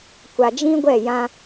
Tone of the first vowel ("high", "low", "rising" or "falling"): low